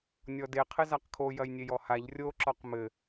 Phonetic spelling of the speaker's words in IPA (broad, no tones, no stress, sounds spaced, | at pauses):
nʲ ɔ d e qʰ ɘ z a q kʰ o j ɐ j nʲ e j ɔ h a ʎ rʲ o ǁ ɔ q m ɘ